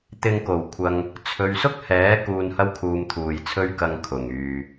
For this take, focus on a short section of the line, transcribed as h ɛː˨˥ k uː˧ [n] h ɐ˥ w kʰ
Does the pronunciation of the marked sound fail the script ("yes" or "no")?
no